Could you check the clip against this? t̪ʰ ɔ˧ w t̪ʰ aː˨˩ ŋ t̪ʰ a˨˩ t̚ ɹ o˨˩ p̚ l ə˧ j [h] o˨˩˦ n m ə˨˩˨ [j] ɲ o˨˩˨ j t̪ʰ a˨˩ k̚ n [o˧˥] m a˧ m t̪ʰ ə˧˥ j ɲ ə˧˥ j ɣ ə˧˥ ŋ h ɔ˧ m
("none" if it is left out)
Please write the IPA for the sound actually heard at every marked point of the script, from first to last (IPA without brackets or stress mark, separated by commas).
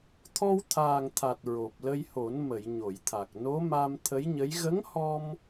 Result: h, j, o˧˥